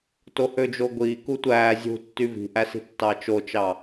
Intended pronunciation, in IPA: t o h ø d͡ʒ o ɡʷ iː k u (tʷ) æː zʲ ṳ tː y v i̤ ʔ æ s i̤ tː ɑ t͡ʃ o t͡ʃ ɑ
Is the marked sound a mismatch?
no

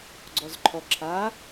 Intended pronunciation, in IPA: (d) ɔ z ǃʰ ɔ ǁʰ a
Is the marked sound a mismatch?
yes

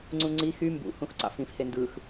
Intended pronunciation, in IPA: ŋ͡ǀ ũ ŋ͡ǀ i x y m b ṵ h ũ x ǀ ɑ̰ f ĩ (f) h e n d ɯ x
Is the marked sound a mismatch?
no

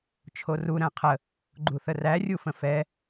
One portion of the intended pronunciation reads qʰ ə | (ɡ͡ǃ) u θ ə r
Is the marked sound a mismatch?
no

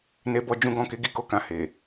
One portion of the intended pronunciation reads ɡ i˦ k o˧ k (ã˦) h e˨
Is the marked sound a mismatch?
yes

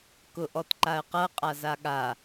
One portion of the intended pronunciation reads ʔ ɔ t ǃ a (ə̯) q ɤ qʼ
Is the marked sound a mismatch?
no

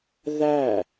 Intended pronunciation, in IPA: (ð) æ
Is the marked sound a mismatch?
no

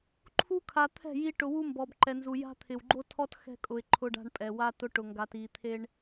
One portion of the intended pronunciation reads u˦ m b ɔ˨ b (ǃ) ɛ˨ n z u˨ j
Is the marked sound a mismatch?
no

